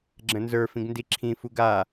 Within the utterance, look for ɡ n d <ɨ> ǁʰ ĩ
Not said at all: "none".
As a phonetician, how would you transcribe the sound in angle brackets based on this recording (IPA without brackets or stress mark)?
i